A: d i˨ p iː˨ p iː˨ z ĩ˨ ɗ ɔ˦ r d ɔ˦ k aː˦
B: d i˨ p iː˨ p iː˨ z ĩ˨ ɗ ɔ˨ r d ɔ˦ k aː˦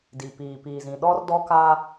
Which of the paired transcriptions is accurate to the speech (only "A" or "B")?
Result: A